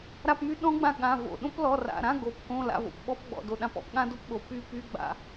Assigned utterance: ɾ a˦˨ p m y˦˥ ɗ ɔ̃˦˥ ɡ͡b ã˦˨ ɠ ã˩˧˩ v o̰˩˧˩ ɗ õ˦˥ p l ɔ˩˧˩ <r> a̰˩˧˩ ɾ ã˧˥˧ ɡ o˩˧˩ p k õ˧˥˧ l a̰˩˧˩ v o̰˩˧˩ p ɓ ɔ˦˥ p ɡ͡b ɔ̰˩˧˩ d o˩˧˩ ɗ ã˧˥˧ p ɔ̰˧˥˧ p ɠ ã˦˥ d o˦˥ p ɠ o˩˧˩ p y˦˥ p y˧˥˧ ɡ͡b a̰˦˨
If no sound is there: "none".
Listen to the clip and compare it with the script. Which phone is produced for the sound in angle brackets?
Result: r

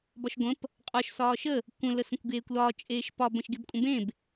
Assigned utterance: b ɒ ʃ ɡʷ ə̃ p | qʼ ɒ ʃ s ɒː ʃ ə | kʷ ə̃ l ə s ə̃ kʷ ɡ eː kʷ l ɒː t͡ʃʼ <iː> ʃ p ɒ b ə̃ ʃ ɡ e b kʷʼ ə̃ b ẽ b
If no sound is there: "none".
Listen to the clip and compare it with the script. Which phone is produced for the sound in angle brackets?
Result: eː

